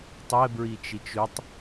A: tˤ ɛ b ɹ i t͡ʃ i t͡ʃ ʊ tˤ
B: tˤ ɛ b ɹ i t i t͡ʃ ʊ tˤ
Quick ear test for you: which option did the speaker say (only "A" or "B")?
A